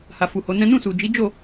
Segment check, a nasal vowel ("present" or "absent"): present